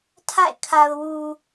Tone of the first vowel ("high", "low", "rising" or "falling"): falling